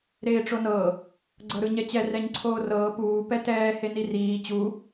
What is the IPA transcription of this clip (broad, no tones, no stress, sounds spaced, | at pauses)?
ɾ eː ʈ͡ʂ o n ɤ | ɡ͡ǀ ɤ ɾ ɯ ɲ ɛ t͡ɕ ɛ r ɛ ɲ ǀʰ oː r ɤː p uː p ɛ t ɛː h e n i r iː t͡ɕ u